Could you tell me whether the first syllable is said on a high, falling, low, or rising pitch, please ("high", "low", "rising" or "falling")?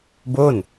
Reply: falling